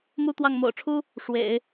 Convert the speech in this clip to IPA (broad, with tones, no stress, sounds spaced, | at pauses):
m u˥ t̪ w ɑ˥˩ ŋ m o̰˨˩ ʊ̯ ʈ͡ʂʰ u˥ | ʂ w ḛ˨˩˦ ɪ̯